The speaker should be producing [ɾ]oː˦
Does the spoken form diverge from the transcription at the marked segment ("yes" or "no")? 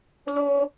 yes